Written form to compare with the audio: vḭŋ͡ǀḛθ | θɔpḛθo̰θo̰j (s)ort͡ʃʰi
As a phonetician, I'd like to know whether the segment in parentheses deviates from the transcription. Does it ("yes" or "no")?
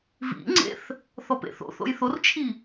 yes